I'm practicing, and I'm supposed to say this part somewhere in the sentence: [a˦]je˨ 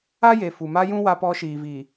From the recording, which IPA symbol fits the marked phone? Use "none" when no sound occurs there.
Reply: a˦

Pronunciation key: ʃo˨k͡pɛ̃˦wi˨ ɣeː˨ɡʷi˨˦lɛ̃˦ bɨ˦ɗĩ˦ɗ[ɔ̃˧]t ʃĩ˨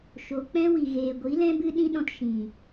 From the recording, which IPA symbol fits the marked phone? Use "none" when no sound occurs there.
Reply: ɔ̃˧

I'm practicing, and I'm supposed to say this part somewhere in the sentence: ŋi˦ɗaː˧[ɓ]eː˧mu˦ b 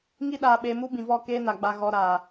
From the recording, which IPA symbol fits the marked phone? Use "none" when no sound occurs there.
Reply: ɓ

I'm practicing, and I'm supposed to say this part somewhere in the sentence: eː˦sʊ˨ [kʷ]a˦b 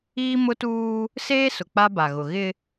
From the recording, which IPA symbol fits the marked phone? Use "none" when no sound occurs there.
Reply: k͡p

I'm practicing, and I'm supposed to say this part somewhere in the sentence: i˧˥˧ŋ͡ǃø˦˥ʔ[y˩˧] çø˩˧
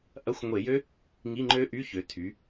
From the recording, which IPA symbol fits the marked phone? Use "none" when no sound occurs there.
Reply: y˧˥˧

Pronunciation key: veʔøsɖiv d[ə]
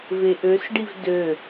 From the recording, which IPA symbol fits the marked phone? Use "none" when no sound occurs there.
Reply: ø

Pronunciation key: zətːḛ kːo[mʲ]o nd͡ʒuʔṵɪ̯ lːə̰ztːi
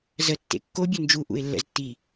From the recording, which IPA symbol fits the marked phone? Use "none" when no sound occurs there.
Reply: bʲ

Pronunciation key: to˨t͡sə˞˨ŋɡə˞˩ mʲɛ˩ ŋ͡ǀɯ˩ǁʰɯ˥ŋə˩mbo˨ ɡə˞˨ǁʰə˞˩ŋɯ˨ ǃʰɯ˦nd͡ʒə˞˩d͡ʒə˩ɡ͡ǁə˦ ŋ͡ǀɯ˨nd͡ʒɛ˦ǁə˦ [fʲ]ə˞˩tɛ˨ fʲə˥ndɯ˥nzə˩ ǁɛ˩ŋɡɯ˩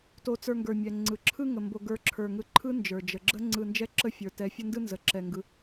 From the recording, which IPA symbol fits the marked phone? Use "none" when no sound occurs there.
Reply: fʲ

